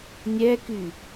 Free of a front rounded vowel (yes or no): no